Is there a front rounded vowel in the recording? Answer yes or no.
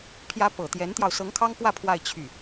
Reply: yes